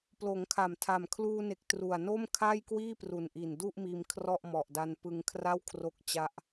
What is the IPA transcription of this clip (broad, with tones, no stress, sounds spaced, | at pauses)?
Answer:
p l oː˩˦ ŋ kʰ a˨˩ m tʰ a˨˩ m kʰ l uː˧ n e˨˩ k̚ t r u˨˩ a̯ n o˥˩ m kʰ a˥˩ j k w iː˥˩ p r u˨˩ n ʔ i˨˩ n d u˥˩ ʔ m iː˧ m kʰ r ɔ˥˩ ʔ m ɔ˨˩ ʔ d a˧ n p ɯ˧ ŋ kʰ r a˥˩ w kʰ r o˦˥ k̚ t͡ɕ a˦˥ ʔ